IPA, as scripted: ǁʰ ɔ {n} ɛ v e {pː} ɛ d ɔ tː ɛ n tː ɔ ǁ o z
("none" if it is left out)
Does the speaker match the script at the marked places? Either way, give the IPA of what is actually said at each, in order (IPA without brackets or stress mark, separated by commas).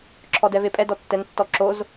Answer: d, pʼ